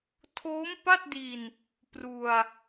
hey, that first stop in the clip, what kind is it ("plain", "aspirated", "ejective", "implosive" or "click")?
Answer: aspirated